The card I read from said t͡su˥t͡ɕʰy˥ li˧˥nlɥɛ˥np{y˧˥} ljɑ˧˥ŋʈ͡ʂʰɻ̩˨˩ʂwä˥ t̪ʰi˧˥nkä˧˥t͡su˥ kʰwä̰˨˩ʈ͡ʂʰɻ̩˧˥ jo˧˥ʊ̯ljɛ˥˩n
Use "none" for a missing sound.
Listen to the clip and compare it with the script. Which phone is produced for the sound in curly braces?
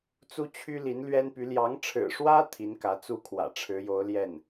y˧˥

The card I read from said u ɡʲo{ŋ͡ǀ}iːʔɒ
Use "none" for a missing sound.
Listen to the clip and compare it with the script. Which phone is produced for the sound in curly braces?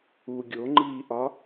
ŋ͡ǃ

